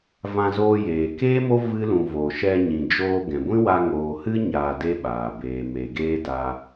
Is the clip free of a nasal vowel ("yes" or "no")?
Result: no